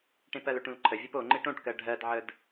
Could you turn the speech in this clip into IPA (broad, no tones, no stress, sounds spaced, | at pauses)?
ʈ ẽ p ɜ l ɵ ʈ ũ l ǃʰ ə vʲ o p o ŋ͡ǃ e ʈ õ ʈ k ɜ ɖʱ ɜ d ʕ ə d